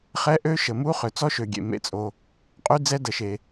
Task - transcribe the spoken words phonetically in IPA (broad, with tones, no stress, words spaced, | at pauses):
χɛ˦˥ʔø˦˥ʃə˨mu˦˥ χø˨t͡sɔ˦˥ʃø˨ɡʲḛ˨ mḛ˨t͡sʼo˨ | qʼy˦˥d͡zɛ˦˥ də˨ʃe˨